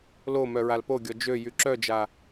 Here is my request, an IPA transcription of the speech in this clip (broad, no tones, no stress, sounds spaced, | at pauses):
l o m œ ɹ a l p o ɡʲ ɔ d͡ʒ ø j y ǁ œ d͡ʒ a